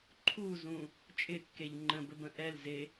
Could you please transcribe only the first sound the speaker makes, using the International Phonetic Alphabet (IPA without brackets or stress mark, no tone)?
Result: ǃʰ